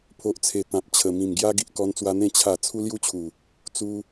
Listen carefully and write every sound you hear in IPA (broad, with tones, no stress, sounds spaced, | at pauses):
pʰ o˨ ʔ t͡sʰ e˨˩ t̪ ã˨ p̚ t͡ɕʰ ə˨˩ m ĩ˨˩ m ɡ j a˦ ɡ i˨ ʔ k ɔ˧ n t͡s w a˧ n̪ ẽ˥˧ t͡ɕʰ a˥˧ t͡sʰ u˦ l j u˦ t͡ɕʰ u˨˩ | t͡s u˧